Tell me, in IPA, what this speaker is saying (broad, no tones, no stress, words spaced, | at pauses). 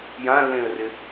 jãlːẽə̯rɪ